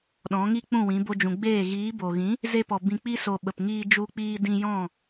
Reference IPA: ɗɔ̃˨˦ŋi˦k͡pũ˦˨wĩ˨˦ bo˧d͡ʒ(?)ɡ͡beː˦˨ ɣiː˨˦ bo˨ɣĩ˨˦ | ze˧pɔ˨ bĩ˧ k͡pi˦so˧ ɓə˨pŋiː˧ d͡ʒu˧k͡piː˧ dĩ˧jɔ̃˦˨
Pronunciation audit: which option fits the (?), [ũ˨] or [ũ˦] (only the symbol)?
ũ˨